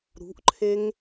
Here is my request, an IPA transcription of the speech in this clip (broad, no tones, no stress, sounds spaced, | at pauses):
ɾ ṳ ʔ ǃʰ e ŋ